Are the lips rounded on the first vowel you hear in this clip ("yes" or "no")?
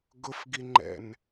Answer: yes